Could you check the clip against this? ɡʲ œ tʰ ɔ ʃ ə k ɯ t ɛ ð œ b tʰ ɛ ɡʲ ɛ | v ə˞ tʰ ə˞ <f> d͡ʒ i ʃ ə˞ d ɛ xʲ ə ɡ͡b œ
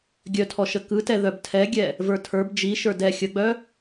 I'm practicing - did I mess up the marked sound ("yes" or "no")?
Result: yes